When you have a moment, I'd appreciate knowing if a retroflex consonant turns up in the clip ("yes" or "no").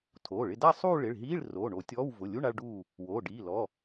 yes